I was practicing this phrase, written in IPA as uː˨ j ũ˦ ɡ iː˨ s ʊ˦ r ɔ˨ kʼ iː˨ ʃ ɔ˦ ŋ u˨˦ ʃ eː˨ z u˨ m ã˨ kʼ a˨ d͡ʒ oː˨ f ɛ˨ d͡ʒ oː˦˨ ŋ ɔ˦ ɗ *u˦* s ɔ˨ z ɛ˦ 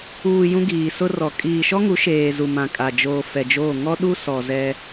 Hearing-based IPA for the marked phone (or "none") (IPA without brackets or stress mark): u˦